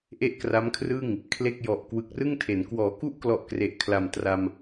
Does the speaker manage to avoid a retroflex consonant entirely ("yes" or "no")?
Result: yes